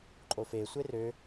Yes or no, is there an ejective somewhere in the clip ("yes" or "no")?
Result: yes